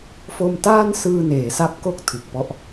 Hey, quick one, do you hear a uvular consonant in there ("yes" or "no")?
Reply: no